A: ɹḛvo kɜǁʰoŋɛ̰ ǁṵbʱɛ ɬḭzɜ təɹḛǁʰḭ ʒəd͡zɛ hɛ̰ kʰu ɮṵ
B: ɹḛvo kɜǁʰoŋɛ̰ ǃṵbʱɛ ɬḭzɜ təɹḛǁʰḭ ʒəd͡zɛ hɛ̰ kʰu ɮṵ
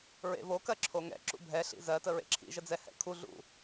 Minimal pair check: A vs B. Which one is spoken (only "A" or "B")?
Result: A